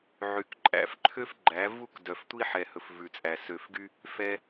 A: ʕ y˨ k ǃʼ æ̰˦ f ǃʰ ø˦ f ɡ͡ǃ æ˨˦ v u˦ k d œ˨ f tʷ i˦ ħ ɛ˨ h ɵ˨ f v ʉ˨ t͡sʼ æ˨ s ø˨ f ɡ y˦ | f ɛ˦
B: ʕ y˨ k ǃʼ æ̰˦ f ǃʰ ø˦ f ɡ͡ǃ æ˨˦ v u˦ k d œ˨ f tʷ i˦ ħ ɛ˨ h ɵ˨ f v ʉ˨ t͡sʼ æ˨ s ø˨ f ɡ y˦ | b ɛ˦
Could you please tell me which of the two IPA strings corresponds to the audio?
A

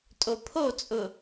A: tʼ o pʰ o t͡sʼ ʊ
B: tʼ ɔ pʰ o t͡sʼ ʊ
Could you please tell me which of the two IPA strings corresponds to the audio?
A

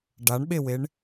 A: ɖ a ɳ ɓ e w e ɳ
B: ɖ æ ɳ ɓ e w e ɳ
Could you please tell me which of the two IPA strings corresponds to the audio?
A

